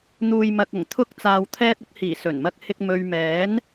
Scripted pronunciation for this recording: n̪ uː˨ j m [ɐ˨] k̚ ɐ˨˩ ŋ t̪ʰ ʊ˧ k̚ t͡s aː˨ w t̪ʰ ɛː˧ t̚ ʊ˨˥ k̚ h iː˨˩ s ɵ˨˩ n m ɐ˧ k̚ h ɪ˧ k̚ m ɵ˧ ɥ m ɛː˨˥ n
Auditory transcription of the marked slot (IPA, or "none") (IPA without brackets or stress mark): ɐ˨